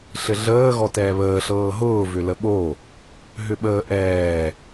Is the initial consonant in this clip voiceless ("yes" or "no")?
yes